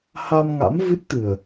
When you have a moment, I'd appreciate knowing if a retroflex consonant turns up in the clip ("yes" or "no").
no